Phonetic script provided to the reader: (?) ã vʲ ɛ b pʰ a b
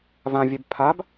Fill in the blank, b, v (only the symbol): v